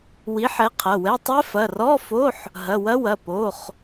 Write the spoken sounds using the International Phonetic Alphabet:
wi˨˥ħɛ˨˥qʰɐ˩˧˩wɛ˧˥˧ tˤɛ˦˥ fɐ˩˧˩rɔ˧˥˧fo˧˥˧ħ | ɦɐ˩˧˩ wɐ˦˥wɐ˩˧˩ po˩˧˩χ

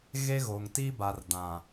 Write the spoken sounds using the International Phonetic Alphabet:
ɣe˦ɣoː˨ŋ tiː˦ba˨rdã˨

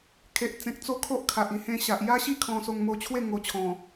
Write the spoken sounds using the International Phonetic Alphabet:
kʰe˨ʔt͡sẽ˨k̚ t͡so˥˧ kʰo˦ʔkʰa˨ʔi˧ hẽ˧ɕa˨ʔ ja˦ɕi˥˧ kʰɔ̃˧ so˧ŋmo˧t͡ɕʰwe˥˧ ŋo˧t͡ɕʰɔ̃˨˩

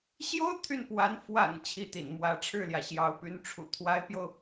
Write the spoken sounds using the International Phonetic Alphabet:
ɕjo˥ʊ̯ t̪ʰy˥˩n pwa˧˥n fwa̰˨˩n t͡ɕʰi˥˩t̪ḭ˨˩nmwä˧˥ ʈ͡ʂʰɻ̩˥˩ljä˩ ɕjɑ˧˥ʊ̯py˧˥n ʈ͡ʂʰṵ˨˩ t̪ʰwa˧˥ɪ̯pjo˧ʊ̯

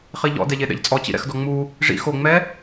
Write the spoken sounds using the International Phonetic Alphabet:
χiʎɔ̰ dɛʎeɗɛ̰ʎt͡sʼɔ t͡ɕḭɾɛ̰xdɔŋ͡mu | ʐḭ xo ŋ͡mɛ

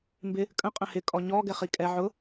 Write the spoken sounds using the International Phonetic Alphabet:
mbɪ | kʼə̃ qʼə̃hɪ kʼɔɲɔ ɡɛχikʼɛ ʕʊ

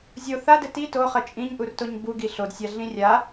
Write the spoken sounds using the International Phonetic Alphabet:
zʲo θadɘ ti toχɐ t͡ʃʼĩɲʔurtoɲ buɡi ɬodsʲaɮĩ rʲa

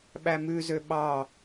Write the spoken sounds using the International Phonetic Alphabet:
ɓæmʉzø ɓɑ

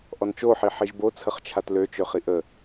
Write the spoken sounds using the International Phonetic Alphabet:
ʔɔnt͡ʃoħi ħiʒbo t͡sʰəχt͡ʃʰatløt͡ʃø χiʔə

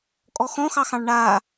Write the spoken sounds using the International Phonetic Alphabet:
kʼɔxɔ̃xɑxɑ̃ɭ ɳa

